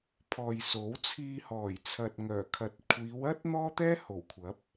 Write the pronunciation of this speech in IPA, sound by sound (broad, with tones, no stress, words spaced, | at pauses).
pʰɔː˨jso˨˥w t͡sʰiː˧hɔː˨˩j t͡sʰɐ˨t̚ŋœː˨˩kʰɐ˨˥t̚ kʷʰiː˨˧wɐ˥t̚ n̪ɔː˥t̪ɛː˥ho˨˩w kʷʰɐ˨˥p̚